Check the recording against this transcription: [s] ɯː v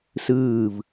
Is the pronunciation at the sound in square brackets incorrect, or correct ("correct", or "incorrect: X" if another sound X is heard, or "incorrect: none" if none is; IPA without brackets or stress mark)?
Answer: correct